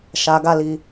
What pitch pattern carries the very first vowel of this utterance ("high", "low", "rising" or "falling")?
low